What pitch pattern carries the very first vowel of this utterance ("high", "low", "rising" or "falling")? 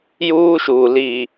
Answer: high